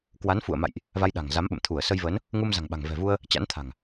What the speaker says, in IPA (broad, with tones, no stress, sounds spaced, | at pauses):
k w a˨˦ n f ṵ˧˨ ə̯ m a̰˧˨ j ʔ | v a˧ j ɗ a̤˨˩ ŋ z a˨˦ m ɓ ə̰˧˨ m t̪ʰ u˧˩ ə̯ s ə˧ j v ə˨˦ n | ŋ u˧ m z a̤˨˩ ŋ ɓ a̤˨˩ ŋ v ɛ̤˨˩ v u˧ ə̯ | t͡ɕ a̰˧˥ n t̪ʰ a̤˨˩ ŋ